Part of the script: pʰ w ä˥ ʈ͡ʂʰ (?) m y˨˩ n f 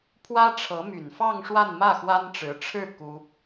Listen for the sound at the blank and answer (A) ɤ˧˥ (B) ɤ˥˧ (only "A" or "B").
A